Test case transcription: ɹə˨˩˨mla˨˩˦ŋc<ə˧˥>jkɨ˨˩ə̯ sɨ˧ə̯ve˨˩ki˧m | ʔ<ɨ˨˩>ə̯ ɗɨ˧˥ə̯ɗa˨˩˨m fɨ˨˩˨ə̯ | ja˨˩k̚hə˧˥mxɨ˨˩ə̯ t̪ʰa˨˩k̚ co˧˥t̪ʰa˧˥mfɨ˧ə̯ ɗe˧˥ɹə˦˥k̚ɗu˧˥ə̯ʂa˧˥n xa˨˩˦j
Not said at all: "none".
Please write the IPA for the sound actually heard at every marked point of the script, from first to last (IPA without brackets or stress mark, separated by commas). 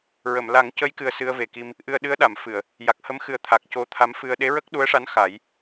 ə˧˥, ɨ˧